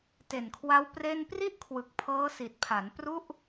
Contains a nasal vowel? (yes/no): no